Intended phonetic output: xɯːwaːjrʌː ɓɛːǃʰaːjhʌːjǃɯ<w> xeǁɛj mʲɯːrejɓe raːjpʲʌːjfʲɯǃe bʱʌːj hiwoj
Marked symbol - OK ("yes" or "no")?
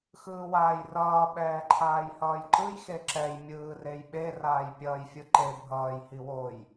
no